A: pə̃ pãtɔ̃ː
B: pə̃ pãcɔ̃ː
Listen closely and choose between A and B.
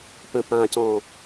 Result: B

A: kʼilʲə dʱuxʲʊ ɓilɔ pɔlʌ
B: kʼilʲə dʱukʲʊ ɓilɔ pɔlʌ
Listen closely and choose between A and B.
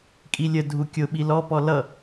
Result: B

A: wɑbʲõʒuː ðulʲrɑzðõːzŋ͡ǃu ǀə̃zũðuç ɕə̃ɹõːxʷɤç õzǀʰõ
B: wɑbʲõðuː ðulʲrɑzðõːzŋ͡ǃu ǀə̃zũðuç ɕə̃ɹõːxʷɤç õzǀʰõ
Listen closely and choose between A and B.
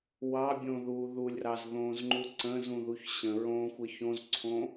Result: B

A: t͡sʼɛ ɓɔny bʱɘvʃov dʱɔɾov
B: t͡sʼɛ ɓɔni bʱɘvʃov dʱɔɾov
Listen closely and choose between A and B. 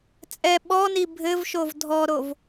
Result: B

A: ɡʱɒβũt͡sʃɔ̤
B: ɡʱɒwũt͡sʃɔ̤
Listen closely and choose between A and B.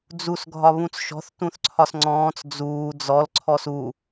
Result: A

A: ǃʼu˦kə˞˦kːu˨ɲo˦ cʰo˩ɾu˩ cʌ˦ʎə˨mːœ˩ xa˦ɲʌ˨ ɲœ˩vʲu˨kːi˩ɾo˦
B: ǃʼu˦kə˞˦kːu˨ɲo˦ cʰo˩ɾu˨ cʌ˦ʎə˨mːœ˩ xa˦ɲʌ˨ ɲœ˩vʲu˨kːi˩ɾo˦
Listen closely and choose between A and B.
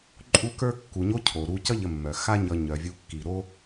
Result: B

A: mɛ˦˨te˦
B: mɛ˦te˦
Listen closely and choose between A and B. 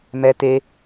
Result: B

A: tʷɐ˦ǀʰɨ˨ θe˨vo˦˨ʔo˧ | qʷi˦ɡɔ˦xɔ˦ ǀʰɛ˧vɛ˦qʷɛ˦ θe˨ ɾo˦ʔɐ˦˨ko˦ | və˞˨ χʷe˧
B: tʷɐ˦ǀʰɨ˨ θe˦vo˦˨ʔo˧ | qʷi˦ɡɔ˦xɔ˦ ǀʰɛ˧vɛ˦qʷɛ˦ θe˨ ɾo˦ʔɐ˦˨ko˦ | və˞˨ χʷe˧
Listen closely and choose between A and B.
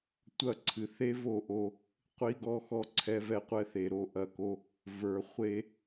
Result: B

